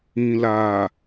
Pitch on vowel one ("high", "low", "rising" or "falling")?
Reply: low